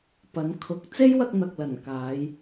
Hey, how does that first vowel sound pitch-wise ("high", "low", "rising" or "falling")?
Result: rising